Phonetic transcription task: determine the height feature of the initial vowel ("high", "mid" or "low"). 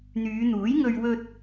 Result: high